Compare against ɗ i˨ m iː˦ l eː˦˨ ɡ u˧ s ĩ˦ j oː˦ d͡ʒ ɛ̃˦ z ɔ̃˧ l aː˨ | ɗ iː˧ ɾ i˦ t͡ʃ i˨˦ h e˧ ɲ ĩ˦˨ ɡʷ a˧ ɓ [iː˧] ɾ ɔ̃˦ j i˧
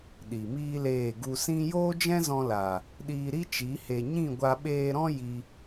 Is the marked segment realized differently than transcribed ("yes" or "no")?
yes